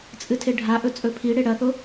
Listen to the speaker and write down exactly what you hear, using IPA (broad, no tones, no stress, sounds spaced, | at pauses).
t͡sʼ ɨ tʰ e ɖʱ a ʔ ɵ t͡sʼ ɵ pʰ i ɽ e ɽ ɐ θ o